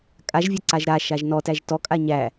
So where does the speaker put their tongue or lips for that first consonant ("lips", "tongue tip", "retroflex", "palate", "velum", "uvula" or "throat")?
velum